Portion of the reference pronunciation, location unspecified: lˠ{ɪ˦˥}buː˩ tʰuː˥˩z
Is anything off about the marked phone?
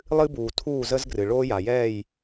yes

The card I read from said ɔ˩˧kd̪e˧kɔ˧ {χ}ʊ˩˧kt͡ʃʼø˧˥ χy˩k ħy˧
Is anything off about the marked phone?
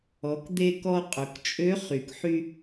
yes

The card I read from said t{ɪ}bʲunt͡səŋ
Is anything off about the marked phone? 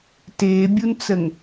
yes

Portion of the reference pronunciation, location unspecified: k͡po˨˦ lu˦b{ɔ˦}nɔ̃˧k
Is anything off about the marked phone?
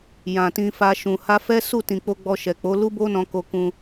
yes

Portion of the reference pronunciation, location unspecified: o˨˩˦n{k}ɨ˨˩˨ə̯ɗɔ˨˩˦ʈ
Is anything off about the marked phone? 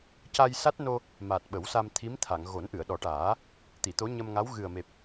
yes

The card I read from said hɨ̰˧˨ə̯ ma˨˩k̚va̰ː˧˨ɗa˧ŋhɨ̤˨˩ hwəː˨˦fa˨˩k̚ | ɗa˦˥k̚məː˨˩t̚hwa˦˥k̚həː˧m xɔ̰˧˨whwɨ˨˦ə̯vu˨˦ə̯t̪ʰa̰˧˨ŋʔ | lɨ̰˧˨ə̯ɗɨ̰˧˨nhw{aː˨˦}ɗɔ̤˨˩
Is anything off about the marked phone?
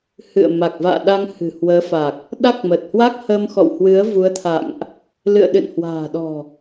yes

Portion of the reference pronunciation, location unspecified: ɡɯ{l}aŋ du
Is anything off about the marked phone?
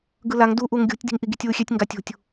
no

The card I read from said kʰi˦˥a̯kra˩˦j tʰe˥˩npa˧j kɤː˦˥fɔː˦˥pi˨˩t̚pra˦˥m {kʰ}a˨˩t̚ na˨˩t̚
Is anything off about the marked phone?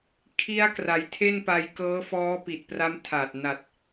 yes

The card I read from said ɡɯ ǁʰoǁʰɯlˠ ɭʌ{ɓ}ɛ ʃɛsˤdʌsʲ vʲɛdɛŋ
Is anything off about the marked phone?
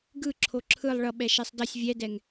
no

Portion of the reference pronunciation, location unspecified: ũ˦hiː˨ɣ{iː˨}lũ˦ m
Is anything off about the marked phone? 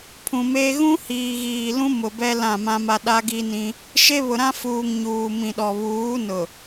no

